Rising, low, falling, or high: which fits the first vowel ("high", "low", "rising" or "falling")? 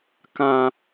low